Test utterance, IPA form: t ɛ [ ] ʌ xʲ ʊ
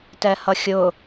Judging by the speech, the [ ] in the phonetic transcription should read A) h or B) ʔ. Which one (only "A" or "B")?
A